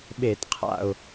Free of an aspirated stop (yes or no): no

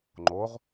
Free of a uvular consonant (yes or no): no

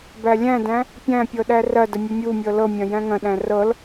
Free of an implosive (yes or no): no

